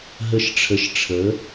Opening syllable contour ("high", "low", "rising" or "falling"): low